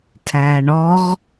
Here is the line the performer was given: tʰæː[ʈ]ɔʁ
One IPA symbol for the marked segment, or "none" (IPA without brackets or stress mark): ɳ